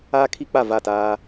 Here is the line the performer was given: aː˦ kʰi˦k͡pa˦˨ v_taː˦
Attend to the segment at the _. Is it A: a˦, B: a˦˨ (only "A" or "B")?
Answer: B